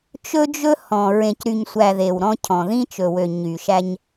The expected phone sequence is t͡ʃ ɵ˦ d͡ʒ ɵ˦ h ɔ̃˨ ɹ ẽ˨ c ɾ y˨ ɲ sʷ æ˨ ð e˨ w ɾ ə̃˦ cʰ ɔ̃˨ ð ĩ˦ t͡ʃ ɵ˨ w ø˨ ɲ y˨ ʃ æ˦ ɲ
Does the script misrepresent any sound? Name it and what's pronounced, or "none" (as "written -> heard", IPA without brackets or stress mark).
ə̃˦ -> ɔ̃˦